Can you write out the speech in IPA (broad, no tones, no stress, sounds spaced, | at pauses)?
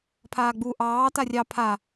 pʰ aː ɡ͡b u ʔ ɑː t a rʲ ɑ pʰ a